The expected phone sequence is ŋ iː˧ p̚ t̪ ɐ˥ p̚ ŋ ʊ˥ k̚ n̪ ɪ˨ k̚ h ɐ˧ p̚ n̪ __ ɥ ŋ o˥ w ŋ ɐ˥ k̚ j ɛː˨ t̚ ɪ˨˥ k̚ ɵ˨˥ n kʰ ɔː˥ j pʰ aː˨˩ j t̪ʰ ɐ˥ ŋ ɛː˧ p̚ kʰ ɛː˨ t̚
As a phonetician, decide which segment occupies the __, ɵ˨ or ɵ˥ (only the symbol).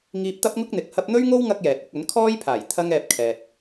ɵ˥